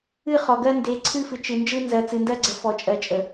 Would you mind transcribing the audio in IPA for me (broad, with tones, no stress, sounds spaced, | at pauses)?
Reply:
ɨ˦˨ χ ɔ˨ ɡ ɜ˦ n d e˨˦ ǀʰ ɨ˦ f ɨ˨ t͡ʃ ɨ˨ n d͡ʒ ɯ˦ n z ɜ˨ t͡s ɨ˨ n d ɜ˦ ɡ͡ǀ ə˨ f ɔ˨ t͡ʃʼ ɜ˨ t͡ʃʼ ə˨